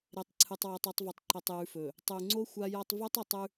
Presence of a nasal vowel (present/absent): absent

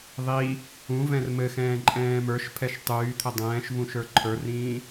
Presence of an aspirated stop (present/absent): present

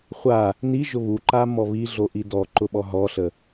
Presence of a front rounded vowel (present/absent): absent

